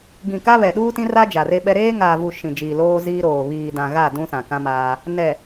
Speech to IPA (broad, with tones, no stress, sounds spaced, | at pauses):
ɡ ĩ˨ k a˦ β ɛ˨ ɗ uː˦ t ĩ˦ r a˦ d͡ʒ a˨ r e˦ ɓ ɛ˦ ɾ eː˦ ŋ aː˨ v u˨ ʃ ĩ˨ d͡ʒ iː˨ l oː˦ z iː˦ ɾ oː˨ β iː˨ d ã˨ ɣ a˦˨ d ũ˦ s ã˨ k ã˦ m aː˦ | n ɛ˨